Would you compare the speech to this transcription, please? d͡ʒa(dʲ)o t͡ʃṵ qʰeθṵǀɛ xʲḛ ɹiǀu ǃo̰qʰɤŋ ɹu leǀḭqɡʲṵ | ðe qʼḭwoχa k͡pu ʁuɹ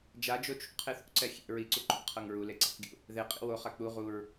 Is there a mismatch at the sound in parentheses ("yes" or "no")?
yes